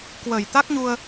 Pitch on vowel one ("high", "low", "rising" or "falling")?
low